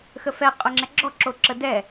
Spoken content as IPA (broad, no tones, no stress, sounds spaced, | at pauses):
x ə f ɛ qʼ ʊ ŋ͡ǁ ɛ ɡ͡ǁ ɔ ǁ o ǁ ə d ɛ